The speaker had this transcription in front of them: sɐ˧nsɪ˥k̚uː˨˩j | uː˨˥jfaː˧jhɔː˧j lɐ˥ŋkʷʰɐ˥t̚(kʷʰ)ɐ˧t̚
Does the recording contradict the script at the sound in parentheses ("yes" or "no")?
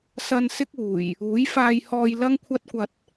yes